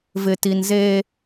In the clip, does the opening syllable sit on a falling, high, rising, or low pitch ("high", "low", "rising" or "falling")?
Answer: low